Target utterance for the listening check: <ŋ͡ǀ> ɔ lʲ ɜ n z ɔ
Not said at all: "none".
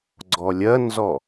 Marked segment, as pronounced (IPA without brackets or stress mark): ɡ͡ǀ